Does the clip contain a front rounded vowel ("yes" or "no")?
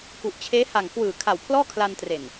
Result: no